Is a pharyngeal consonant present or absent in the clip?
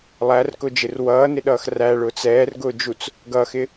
absent